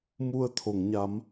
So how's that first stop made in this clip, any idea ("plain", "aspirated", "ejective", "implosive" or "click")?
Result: aspirated